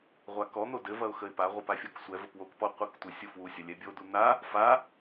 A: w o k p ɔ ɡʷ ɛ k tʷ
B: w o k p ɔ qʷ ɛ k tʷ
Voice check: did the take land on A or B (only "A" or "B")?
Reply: B